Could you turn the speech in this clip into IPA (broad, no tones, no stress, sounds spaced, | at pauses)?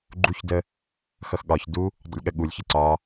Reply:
ɡ͡ǃ u ç d ə | x ʌ x ɠ ɒ ç d u | dˤ ṵ lʲ ɠ ə ɠ u lʲ ç ɪ ǀ ɒ